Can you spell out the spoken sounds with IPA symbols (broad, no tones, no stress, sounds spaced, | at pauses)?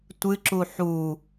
tʷ ɨ ǁ u ħ u